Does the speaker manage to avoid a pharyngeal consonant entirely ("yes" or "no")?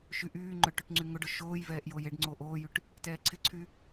yes